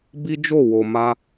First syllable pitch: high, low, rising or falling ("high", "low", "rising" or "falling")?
high